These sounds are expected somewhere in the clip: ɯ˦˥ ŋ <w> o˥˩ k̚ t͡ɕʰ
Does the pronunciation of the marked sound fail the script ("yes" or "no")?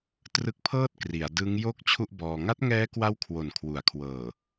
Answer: yes